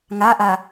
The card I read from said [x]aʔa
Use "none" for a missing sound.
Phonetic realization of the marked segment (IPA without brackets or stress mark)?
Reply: ŋ